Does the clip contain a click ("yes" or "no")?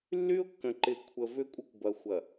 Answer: yes